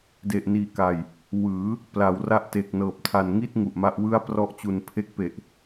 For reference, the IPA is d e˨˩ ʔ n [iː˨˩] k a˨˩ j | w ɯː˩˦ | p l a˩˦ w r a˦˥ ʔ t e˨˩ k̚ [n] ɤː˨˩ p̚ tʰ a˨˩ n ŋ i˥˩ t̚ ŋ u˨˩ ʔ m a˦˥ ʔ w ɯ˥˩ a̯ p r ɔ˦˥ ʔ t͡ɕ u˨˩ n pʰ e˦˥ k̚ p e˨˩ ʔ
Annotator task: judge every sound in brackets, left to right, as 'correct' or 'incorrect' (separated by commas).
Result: correct, correct